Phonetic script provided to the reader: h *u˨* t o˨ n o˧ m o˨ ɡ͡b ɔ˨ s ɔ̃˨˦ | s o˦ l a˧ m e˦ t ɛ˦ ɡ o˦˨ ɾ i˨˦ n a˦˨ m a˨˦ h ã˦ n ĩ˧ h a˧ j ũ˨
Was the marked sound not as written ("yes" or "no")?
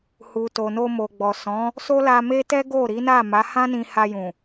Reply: no